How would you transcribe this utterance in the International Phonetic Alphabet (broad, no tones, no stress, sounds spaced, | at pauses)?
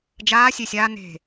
d͡ʒ aː sʲ e sʲ aː n e̤